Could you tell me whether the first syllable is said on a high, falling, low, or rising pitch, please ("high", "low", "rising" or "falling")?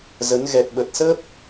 rising